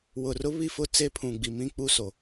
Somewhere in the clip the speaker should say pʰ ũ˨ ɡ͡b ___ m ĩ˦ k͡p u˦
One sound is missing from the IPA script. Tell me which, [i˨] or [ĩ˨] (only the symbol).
i˨